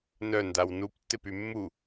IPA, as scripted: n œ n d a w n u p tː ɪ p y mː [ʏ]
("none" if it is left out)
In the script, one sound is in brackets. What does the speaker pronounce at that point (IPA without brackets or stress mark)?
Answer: u